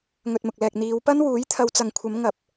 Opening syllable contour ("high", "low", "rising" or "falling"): low